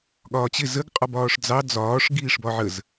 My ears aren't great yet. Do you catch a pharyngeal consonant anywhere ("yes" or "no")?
yes